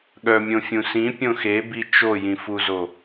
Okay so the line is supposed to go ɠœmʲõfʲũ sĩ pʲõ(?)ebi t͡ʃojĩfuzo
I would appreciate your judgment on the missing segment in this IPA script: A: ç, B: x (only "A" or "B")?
B